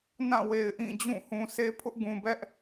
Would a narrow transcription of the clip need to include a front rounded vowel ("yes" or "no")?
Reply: no